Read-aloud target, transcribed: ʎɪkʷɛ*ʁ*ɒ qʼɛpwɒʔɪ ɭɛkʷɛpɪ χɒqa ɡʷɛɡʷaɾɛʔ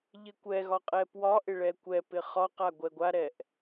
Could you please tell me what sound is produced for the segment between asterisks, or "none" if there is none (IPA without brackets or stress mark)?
ɣ